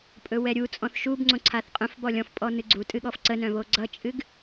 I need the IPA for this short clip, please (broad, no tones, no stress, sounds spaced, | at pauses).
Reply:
pʼ ɵ w ɛ ɾʲ u t͡sʼ ɔ̃ θ ʃ u b ŋ͡ǀ õ ǀʰ a θ qʼ œ̃ f b ɔ lʲ ɔ̃ f pʼ ɔ n ɨ ɡ͡ǀ u tʼ ɨ ɠ ɔ f ǀ ə n œ̃ β o ɡ͡ǀ ʌ t͡ʃʼ ɨ ɡ